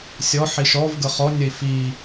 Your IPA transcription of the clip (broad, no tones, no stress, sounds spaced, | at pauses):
sʲ ɔ ħ i ʃ ɔ v ɡ ə χ ɔ nʲ ə i̯ f i